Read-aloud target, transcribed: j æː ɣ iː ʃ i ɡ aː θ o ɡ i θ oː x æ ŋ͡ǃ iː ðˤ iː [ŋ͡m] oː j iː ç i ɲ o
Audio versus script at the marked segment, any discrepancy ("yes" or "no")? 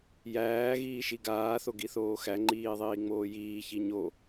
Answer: no